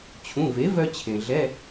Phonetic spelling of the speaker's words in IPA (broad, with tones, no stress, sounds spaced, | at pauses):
t͡ɕʰ ũ˩˧˩ v e˩˥ v œ˧ t͡ɕʰ ẽ˩ ɮ ɛ˧˥˧